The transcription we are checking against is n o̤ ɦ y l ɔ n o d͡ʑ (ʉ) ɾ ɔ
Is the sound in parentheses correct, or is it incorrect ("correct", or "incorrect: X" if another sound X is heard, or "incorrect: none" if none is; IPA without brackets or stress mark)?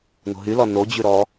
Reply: correct